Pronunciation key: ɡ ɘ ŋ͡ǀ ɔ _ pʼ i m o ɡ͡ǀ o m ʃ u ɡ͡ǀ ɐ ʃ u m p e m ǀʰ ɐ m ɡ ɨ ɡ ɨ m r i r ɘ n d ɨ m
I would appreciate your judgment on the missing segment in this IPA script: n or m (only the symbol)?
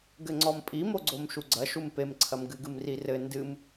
m